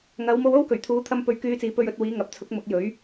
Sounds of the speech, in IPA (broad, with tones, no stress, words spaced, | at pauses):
ŋɐ˨˧wmo˧w o˥wkɵ˨˩ɥt̪ʰuː˨˥t̪ʰɐ˧m pɵ˧ɥkyː˧t͡siː˨˥ pɵ˧ɥɵ˧t̚ wiː˨˧ŋɐ˨p̚ t͡sʰʊ˨˥k̚ mʊ˨˥k̚jɵ˨˥ɥ